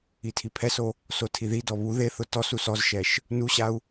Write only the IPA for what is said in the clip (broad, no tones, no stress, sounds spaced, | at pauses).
i tʰ i pʰ ɛ s o | s o tʰ i ð i d ɔ β u ð e θ ʊ t ɔ s u s ɔ z ʃ ɛ ʃ | n u ɕ a u̯